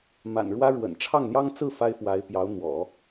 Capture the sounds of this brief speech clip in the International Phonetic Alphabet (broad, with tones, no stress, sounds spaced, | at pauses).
m a̰˨˩ n ɻ w ä˥ ɻ w ə̰˨˩ n ʈ͡ʂʰ ɑ˥˩ ŋ n̪ j ɑ˥ ŋ t͡s ɹ̩˥˩ f a˥ ɪ̯ f w a˧˥ ɪ̯ p j ɑ˧˥ ʊ̯ n̪ w ɔ̰˨˩˦